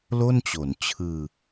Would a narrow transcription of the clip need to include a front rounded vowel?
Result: no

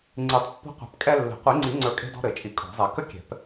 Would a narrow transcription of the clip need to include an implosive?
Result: no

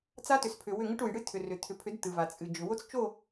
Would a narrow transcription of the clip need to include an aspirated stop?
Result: yes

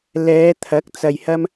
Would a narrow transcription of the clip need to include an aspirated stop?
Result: yes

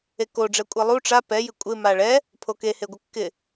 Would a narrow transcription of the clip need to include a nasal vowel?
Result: no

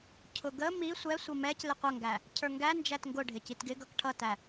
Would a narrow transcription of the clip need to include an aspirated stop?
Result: yes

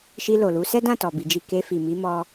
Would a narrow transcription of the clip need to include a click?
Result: no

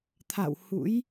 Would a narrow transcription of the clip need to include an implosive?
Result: no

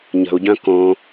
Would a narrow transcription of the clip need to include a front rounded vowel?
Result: yes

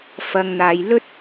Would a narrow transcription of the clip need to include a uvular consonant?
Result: no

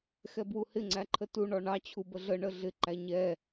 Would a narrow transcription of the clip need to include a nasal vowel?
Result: no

